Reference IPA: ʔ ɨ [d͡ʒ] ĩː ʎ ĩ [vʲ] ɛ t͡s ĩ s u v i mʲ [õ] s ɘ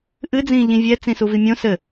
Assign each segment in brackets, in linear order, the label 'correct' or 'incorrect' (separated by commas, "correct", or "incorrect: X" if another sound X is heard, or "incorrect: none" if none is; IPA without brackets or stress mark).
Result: incorrect: d͡z, correct, correct